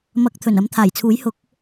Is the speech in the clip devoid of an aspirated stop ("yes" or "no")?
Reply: no